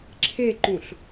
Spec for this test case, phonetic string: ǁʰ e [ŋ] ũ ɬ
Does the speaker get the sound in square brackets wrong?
yes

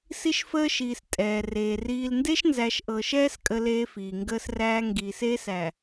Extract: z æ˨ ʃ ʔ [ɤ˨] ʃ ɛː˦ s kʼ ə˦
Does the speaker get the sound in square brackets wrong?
no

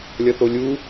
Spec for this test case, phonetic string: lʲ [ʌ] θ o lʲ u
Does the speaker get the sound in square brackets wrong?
no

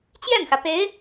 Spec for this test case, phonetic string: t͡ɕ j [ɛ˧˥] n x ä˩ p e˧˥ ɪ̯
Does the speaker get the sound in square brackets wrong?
yes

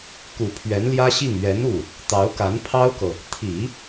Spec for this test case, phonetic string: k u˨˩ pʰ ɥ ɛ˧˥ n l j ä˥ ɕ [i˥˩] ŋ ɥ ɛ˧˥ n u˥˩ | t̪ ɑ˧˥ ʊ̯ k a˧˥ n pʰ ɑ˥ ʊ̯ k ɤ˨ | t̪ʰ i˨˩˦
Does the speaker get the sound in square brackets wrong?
no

